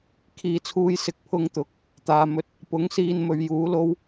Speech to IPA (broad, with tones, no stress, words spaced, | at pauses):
kʰiː˨t͡sʰuː˧jsɪ˧k̚ pʰʊ˧ŋt̪ʊ˨˥k̚ | t̪aː˨mɵ˧t̚ | pʊ˨˥ŋsiː˧n mɵ˨ɥjuː˨˥lo˥w